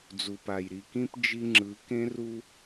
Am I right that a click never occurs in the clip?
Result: no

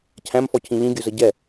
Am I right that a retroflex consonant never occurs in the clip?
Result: yes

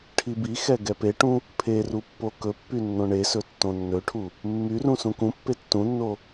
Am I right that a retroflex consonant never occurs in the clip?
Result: no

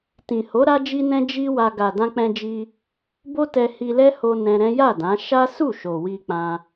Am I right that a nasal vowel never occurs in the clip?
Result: no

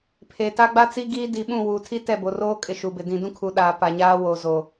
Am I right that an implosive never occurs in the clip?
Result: no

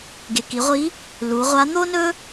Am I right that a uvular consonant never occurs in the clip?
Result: no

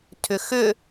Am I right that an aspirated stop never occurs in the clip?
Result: no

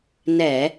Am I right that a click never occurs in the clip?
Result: yes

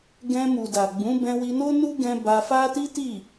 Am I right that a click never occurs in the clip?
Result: yes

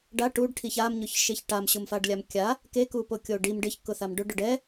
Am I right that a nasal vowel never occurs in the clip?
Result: yes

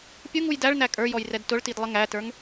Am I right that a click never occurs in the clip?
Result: yes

